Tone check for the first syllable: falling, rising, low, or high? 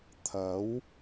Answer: rising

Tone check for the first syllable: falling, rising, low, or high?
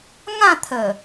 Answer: falling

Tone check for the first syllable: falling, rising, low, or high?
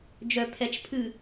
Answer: low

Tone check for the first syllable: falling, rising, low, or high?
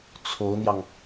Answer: rising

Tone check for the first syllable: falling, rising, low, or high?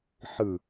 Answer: low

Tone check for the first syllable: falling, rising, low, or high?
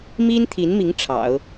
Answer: high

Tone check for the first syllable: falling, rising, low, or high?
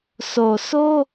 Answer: low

